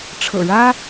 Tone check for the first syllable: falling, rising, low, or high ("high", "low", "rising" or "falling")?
low